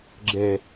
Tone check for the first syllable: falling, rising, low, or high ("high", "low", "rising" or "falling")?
low